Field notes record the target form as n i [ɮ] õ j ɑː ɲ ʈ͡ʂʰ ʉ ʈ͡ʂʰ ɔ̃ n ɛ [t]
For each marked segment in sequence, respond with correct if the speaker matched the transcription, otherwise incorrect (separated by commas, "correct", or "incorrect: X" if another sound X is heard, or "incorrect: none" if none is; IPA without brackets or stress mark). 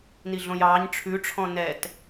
correct, correct